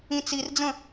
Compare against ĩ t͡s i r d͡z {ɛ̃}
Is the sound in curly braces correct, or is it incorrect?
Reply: incorrect: ə̃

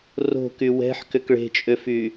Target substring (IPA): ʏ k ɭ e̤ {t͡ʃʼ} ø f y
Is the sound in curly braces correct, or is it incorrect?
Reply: correct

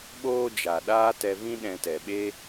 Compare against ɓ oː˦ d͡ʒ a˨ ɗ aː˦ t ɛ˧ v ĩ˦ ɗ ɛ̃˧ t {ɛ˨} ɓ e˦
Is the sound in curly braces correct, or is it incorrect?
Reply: correct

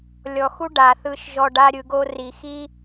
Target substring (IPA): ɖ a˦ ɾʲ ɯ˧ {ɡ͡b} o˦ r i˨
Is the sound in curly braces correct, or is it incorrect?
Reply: incorrect: ɡ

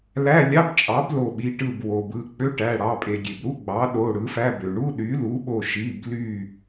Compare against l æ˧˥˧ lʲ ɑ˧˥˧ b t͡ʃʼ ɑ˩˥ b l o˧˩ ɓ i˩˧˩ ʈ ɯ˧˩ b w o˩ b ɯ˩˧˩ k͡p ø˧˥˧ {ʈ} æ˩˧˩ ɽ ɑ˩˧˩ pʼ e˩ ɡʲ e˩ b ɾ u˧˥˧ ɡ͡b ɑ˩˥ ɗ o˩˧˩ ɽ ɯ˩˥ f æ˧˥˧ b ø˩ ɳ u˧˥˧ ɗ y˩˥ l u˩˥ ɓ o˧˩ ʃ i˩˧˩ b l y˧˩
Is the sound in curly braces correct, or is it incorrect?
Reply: correct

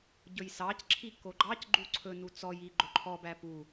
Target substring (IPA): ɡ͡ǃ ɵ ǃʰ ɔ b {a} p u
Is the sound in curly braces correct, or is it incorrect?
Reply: incorrect: æ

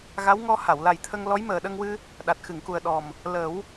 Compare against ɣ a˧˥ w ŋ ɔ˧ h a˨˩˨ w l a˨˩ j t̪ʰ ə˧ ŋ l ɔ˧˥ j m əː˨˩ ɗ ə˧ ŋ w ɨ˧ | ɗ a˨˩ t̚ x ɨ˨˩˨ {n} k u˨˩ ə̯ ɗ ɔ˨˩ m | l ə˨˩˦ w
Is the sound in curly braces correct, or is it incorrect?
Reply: incorrect: ŋ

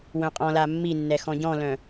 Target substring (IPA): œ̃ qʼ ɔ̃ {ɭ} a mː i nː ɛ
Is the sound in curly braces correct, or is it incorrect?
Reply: incorrect: l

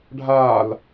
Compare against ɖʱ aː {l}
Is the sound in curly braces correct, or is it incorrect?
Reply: correct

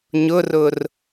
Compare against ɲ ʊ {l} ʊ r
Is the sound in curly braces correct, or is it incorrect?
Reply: incorrect: r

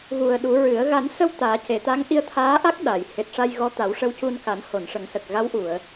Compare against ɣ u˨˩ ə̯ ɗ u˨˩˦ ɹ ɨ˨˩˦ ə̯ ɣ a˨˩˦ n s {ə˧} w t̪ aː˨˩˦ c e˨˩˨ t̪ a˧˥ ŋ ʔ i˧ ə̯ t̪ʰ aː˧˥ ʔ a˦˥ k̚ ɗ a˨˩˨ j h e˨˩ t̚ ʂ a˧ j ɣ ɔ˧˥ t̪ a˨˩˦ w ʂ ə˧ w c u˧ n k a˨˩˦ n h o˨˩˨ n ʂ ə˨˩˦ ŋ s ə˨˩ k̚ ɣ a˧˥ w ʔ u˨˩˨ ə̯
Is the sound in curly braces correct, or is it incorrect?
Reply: correct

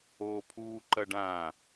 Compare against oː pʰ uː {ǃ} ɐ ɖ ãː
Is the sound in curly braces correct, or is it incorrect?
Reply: correct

